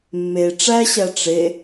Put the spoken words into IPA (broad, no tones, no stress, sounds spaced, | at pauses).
mː e ʈ͡ʂ æ ɕ æ ʈ͡ʂ e